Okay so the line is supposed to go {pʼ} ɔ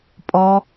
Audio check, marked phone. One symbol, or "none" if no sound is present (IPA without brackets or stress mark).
pʼ